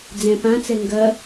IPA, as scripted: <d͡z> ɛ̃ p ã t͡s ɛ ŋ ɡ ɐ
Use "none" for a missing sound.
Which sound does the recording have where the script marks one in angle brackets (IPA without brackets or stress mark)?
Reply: d͡z